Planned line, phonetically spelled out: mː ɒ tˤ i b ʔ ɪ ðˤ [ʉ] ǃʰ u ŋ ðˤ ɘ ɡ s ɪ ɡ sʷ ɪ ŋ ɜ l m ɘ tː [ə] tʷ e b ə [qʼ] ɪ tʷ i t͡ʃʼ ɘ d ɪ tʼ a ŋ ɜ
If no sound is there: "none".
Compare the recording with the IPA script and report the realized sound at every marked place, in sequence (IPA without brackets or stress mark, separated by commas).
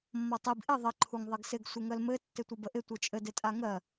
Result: ə, ɪ, ʔ